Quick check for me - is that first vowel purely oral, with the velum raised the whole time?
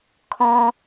no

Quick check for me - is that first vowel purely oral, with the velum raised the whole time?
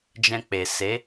no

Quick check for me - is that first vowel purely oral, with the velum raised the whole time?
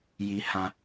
yes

